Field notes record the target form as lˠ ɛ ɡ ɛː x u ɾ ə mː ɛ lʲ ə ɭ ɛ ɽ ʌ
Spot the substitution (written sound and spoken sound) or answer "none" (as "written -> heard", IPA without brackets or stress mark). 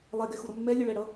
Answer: ɛː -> ɛ